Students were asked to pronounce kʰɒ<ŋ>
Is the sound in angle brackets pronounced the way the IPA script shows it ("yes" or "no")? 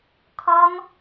yes